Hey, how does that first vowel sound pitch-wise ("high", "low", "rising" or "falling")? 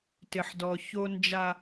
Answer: low